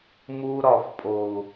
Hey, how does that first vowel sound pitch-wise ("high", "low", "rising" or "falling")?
high